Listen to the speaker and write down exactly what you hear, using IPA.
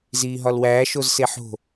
z iː ɦ ɒ l w æː ʃ o z s e ħ o̤

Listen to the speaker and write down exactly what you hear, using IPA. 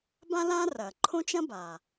b ã˥ l ã˥ r ɐ˩ ǃʰ õ˥ t͡ʃ ɐ̃˥ b a˩

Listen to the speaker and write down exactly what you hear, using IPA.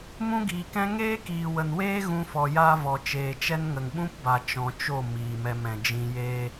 m ũ˦ ɡ iː˨ k ɛ̃˦ ŋ eː˦ k iː˨ w ə˨ n w eː˦ ɣ ũ˧ f ɔ˨ j a˦ v ɔ˨ t͡ʃ eː˨ t͡ʃ ɛ˦ n ŋ ə˨ ŋ ɓ ũ˦ p b a˨ t͡ʃ ɔ̃˨ t͡ʃ o˦˨ m iː˨ m ɛ˧ m ɛ̃˨ d͡ʒ ĩ˧ j eː˦

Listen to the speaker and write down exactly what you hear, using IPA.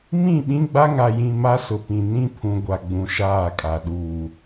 m ĩ˦˨ ɓ ĩ˦ ɡ͡b a˦ ŋ a˨ j ĩ˨ m a˦ s ʊ˨ p ĩ˨ n ĩ˦ pʰ ũ˨ ɡʷ a˨ ɡ͡b ũ˨ ʃ aː˦˨ kʼ a˨ ɗ uː˨

